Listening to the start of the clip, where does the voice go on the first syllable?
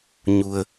low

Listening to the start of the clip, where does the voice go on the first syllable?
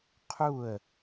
falling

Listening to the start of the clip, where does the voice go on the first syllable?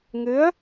rising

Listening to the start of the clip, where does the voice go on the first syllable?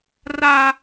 high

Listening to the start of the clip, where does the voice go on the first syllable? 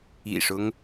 low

